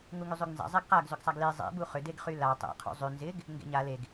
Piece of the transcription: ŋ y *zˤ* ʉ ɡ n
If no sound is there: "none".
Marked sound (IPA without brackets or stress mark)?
zˤ